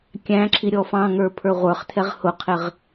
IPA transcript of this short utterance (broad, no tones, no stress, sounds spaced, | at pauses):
kʲ æ̃ ǁʰ i ɾʲ ɔ f ɑ̃ ŋ ə˞ pʰ ə˞ ʁʷ ə˞ χ tʰ ɛ ʁ h ʊ qʰ ɪ ʁ